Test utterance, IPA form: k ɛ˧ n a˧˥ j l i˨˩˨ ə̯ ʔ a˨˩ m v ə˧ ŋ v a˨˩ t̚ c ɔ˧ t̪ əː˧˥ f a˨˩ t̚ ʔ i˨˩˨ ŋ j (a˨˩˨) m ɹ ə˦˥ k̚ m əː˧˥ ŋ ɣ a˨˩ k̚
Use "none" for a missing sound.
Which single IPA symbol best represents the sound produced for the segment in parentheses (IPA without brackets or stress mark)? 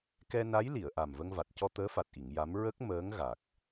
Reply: a˧˥